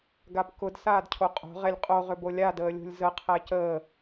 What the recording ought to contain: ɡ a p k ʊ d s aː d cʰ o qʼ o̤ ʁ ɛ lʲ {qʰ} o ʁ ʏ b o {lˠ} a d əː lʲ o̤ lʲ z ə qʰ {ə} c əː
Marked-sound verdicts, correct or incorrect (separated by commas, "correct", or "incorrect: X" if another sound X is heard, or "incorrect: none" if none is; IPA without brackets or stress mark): incorrect: qʼ, incorrect: lʲ, incorrect: æ